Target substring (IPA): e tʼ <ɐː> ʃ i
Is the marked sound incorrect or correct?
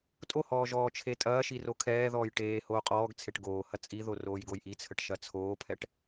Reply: correct